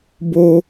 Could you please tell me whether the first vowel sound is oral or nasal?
oral